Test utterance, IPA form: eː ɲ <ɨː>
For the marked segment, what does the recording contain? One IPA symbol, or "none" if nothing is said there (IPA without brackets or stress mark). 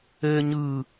ɨː